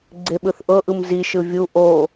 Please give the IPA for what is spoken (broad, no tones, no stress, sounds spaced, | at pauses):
ɡ͡ǀ e ɓ ɯ θ ʔ ɤ ʔ ɯ m z i ʃ ɯ vʲ u ʔ o